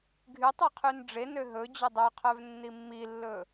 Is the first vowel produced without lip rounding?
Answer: no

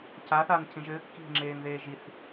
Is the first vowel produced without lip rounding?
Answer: yes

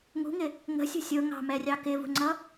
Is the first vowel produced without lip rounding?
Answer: no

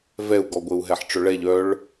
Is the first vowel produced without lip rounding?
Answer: yes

